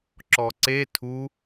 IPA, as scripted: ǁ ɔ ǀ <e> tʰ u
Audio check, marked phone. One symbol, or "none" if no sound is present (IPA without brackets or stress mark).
e